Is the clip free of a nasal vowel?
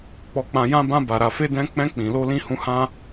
no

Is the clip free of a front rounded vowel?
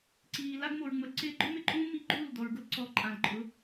yes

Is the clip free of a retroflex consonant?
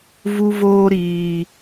yes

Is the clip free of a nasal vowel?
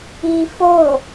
yes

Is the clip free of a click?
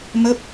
yes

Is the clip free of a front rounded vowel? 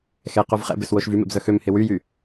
no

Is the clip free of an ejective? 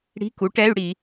yes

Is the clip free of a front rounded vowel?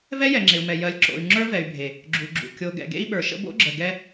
no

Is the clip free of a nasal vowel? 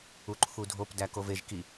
yes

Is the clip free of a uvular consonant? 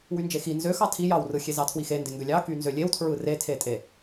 yes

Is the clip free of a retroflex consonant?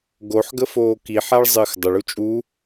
no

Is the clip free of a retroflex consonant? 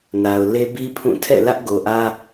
yes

